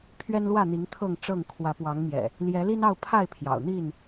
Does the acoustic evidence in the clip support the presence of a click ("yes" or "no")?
no